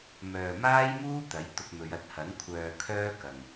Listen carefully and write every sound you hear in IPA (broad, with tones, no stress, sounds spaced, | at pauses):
m œː˨ m aː˥ j m uː˥ t̪ ɐ˨˥ j t̪ ʊ˧ k̚ m ɵ˨˧ ɥ ɐ˨˥ t̚ h ɐ˨˥ n kʷʰ œː˧ kʰ œː˥ k ɐ˨ ŋ